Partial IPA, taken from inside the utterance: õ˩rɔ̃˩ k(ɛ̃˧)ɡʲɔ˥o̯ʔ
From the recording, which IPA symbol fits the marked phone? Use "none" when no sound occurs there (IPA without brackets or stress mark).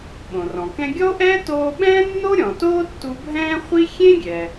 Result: ɛ̃˧